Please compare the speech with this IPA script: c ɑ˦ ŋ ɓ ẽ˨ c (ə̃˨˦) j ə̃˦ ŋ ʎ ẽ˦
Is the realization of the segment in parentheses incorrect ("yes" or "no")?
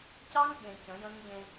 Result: no